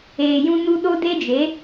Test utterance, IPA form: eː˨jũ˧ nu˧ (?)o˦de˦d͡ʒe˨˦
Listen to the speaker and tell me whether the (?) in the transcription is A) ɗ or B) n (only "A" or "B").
A